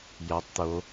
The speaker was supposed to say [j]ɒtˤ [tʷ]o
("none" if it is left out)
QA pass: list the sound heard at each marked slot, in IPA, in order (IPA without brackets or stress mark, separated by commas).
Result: j, t̪